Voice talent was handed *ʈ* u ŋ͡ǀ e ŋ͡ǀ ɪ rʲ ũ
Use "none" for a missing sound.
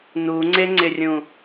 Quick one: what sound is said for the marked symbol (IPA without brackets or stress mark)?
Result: n